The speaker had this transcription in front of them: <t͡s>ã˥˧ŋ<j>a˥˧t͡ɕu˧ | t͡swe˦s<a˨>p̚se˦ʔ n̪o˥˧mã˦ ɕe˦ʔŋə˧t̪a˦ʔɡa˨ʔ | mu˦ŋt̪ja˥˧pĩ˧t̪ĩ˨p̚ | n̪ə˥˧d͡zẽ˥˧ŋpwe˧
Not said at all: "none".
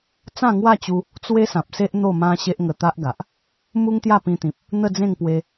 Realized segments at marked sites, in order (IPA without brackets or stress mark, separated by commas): t͡s, w, ã˨